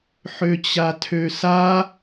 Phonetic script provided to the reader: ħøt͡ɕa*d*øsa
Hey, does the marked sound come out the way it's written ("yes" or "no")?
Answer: no